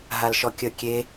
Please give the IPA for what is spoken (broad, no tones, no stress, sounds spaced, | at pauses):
ɦ a l ʃ ɔ kʲ ə kʲ e